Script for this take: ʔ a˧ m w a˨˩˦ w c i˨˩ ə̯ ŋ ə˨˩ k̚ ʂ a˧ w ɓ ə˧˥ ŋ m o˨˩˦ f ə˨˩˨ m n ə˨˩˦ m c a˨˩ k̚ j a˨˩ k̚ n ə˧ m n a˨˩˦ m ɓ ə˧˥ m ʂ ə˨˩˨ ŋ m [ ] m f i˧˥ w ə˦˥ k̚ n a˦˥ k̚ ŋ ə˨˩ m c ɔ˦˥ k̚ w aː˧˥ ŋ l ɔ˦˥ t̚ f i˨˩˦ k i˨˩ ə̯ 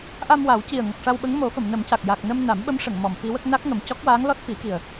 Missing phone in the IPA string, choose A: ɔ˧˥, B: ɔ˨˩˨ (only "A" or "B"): B